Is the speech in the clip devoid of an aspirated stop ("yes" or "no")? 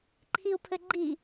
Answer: no